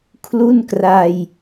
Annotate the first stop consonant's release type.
aspirated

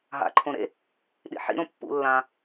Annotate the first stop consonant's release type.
click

